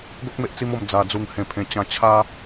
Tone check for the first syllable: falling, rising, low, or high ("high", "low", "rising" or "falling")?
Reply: high